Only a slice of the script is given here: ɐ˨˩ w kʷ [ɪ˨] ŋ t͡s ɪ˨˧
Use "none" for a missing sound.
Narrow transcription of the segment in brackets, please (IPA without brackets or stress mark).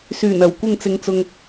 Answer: ɪ˨